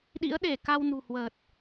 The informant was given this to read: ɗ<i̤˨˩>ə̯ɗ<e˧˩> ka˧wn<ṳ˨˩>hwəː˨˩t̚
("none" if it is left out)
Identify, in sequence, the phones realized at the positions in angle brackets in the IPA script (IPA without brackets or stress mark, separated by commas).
ḭ˧˥, e˧˩, ṳ˨˩